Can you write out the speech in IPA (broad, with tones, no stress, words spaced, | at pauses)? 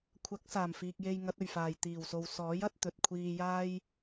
kʷʰɐ˨˥k̚saː˨˩mfiː˨k̚ je˧jŋɐ˨˥t̚ɵ˨˩ɥfaː˨˩j t̪iː˨˩wso˨w sɔː˨˥jɐ˨˥t̚ t̪ɵ˨t̚kʷʰiː˧jaː˥j